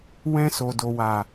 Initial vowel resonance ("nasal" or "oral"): nasal